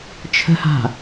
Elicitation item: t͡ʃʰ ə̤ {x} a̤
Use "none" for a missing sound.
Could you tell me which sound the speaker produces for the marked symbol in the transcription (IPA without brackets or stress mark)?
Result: h